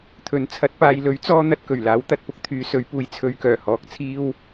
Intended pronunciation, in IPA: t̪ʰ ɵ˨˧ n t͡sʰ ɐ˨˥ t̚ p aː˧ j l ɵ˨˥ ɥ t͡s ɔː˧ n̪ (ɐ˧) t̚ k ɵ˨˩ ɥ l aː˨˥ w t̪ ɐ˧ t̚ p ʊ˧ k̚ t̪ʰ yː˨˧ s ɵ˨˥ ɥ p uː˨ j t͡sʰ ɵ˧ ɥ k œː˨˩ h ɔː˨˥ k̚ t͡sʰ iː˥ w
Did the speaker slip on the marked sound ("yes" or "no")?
no